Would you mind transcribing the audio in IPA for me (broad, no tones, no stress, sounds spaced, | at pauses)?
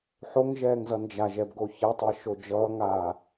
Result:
ħ o ŋ ʒ ɛː ŋ z ʌ n d͡ʒ a ʒ ɛ b ɡ o ç ɛ tˤ ɛ ʃ o d͡ʒ ʌː ŋ aː